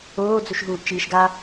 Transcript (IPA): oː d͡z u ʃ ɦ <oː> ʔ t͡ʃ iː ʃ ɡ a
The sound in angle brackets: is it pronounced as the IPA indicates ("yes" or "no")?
no